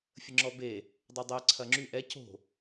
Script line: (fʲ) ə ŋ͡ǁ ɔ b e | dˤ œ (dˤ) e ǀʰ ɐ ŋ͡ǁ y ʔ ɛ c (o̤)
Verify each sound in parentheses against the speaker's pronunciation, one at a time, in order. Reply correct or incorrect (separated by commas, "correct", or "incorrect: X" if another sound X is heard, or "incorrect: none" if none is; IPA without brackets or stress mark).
correct, correct, correct